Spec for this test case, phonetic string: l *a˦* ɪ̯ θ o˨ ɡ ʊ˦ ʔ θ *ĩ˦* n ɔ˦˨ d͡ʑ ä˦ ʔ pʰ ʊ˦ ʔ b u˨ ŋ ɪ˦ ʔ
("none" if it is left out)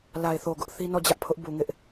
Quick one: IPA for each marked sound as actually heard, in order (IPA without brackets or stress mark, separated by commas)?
a˨, i˦